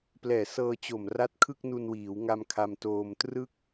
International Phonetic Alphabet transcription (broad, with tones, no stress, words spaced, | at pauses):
plɛː˨˩sɤː˧t͡ɕo˨˩m ra˦˥t̚ kʰɯ˥˩k̚nu˧nwiː˩˦wŋa˧m kʰa˧mtoː˧m trɯ˥˩k̚